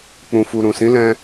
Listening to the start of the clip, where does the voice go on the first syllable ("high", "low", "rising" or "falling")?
low